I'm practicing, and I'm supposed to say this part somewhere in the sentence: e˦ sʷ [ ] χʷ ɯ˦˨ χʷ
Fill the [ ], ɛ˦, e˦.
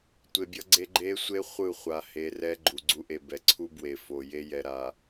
e˦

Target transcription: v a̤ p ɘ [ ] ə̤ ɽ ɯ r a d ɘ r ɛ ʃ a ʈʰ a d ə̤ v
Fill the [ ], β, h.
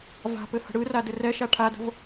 h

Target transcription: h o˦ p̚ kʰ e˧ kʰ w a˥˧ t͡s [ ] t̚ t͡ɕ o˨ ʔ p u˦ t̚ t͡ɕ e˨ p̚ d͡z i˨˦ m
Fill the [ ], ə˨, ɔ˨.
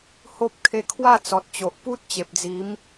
ɔ˨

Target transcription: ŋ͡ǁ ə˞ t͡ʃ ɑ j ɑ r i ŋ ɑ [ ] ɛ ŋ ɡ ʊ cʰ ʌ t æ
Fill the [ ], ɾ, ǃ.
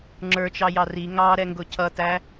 ɾ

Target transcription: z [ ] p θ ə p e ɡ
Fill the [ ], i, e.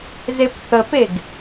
e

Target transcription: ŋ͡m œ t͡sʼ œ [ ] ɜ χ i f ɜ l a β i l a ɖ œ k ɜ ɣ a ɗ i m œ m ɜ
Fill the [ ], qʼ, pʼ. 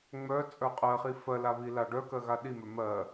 qʼ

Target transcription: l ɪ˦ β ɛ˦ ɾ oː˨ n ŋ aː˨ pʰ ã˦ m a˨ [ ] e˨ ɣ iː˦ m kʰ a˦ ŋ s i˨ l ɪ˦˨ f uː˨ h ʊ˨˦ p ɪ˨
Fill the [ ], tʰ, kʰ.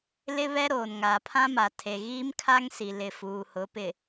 tʰ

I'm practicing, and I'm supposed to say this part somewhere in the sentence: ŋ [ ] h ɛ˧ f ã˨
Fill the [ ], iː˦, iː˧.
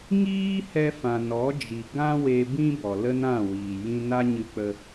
iː˦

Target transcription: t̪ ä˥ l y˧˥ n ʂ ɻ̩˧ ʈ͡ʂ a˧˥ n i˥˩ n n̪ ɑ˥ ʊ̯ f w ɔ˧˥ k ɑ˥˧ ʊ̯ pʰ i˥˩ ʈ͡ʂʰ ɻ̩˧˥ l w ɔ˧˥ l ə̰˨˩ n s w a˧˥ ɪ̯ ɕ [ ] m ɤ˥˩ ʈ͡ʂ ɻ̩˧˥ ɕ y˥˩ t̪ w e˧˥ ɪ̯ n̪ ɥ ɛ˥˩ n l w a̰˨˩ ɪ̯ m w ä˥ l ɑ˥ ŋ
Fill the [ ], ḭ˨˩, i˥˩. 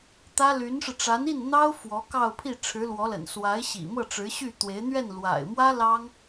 ḭ˨˩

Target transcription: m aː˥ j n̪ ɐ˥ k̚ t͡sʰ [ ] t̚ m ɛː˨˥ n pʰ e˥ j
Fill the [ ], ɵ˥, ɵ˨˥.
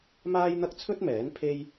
ɵ˥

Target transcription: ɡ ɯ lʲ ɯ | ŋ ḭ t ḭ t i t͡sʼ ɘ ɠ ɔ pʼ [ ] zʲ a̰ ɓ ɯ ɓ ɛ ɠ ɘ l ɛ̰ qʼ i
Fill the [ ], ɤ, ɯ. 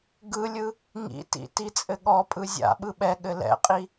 ɯ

